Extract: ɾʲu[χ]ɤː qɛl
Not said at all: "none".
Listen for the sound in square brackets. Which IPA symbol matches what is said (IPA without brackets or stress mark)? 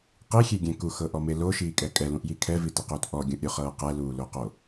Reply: χ